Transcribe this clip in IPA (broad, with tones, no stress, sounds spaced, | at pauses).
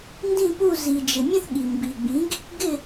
n d ĩ˥˨ p u˥˨ z i˩ d͡ʒ ɪ˩ mʲ ə̃˥˨ θ ɠ i˩ m b i˩ ɡ͡b ĩ˩˥ ɡ | ɡ ɪ˥˨